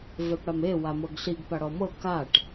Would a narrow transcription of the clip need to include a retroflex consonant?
yes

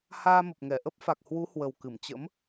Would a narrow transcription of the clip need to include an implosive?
no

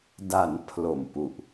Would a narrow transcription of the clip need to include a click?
no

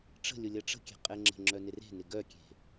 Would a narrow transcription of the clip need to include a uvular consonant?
yes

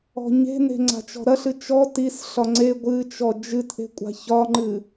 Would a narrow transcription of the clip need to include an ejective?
yes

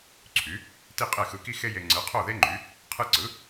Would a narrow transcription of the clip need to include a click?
yes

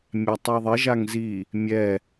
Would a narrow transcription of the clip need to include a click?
no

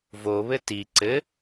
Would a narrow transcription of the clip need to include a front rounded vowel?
no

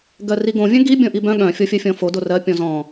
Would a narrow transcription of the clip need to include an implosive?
yes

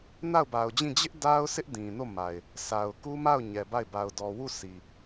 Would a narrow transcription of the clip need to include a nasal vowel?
yes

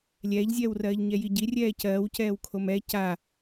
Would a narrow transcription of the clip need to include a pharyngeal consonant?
no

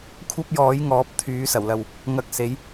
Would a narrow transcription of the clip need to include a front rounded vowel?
yes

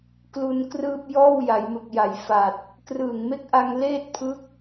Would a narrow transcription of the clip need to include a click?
no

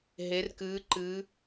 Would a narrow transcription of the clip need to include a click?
yes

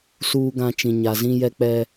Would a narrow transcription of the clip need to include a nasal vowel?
yes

